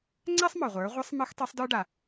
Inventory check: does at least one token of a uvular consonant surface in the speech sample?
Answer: yes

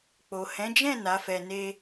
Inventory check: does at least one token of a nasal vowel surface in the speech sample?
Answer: yes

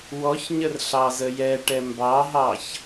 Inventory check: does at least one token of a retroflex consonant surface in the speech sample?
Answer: yes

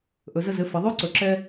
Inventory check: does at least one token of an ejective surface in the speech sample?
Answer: no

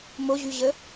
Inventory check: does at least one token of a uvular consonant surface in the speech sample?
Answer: no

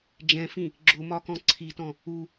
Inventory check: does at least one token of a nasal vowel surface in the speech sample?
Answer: yes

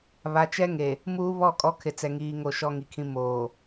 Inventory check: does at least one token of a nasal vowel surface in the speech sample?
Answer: yes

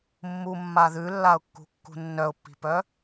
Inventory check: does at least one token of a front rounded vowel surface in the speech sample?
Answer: yes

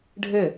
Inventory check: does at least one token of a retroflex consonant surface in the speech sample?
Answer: yes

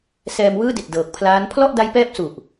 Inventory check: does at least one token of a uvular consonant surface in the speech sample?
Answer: no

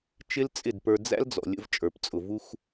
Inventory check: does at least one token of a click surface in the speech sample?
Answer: no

